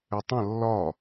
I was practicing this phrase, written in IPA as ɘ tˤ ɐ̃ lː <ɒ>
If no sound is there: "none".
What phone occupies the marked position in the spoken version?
ɒ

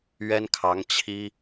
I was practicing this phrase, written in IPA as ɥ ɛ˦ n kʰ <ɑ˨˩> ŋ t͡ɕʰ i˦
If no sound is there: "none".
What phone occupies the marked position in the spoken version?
ɑ˨˦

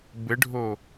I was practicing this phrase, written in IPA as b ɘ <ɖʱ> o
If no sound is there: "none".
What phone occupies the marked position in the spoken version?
ɖʱ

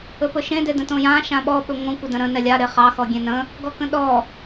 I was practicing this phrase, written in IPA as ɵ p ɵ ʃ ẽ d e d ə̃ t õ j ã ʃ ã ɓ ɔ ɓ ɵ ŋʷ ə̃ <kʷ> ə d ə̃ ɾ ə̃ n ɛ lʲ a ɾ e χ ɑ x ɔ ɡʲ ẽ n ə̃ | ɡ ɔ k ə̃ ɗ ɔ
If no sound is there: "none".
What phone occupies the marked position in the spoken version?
kʷ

